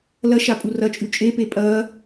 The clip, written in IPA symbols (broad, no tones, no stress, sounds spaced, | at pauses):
l ɐ ʃ a pʼ u r ɐ t͡ʃʼ ʉ t͡ʃʼ e p e pʼ ɐ